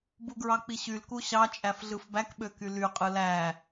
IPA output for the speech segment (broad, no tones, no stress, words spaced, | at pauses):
buɡɹɑk͡piɕyl kuɕɑ t͡ʃʼæfɮɯfbæk ɓøkyly qʼɯlæ